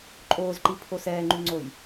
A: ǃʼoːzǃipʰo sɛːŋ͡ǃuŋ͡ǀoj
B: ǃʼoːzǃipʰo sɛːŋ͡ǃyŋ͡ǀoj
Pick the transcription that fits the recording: B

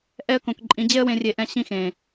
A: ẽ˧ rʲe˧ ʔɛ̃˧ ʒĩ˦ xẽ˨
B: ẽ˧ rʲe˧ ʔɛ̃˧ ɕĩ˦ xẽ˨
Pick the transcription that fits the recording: B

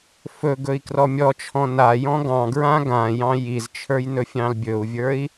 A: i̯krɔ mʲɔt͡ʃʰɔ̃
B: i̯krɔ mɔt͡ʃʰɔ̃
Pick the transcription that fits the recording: A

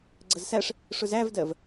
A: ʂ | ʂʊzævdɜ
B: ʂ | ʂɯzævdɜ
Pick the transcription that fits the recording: A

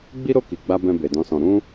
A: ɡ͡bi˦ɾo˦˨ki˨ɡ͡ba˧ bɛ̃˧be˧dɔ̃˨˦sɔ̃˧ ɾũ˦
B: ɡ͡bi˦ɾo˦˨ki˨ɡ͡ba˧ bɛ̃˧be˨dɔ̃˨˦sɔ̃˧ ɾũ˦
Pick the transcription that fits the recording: B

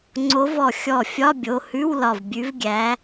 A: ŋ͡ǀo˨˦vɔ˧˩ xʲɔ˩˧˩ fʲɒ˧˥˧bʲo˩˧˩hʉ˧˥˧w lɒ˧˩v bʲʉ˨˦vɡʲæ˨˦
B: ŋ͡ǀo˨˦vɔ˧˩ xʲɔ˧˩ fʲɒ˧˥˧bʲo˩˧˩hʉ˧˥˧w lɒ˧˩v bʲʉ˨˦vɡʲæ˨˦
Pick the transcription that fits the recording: B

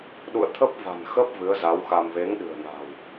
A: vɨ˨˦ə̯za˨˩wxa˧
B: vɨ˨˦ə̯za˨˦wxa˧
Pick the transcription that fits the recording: B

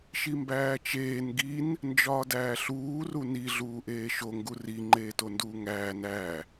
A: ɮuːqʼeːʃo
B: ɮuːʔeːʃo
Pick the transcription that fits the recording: B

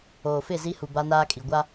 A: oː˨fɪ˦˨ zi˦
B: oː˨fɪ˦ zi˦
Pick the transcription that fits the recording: A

